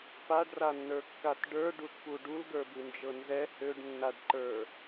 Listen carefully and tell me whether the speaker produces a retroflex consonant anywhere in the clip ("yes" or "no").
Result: yes